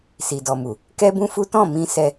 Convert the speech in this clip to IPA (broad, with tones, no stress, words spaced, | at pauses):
si˨dɔ˨mu˨ | kɛ˦bũ˦fu˦ tɔ̃˦˨mĩ˧ sɛ˧